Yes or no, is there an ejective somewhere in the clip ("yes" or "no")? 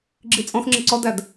yes